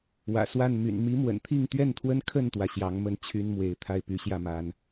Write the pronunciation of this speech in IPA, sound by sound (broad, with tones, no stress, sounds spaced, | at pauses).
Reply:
w ä̰˨˩ s w a˥˨ n m y̰˨˩ n m i˨˦ m w ə̰˨˩ n t̪ʰ i˥˨ ŋ t̪ ɥ ɛ˥˨ n t̪ʰ w ə˦ n kʰ ə˥˨ n t̪ w ä˩ ɕ j ɑ˨˦ ŋ m ə˥˨ n t͡ɕʰ y˦ n m w e˨˦ ɪ̯ t̪ʰ a˥˨ ɪ̯ p y˨˦ ɕ j ä˥˨ m a˨˦ n